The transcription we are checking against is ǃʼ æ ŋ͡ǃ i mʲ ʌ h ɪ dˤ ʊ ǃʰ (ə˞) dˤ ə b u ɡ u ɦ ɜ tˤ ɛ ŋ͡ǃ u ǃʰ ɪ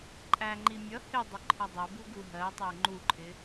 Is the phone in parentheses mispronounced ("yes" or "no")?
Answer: yes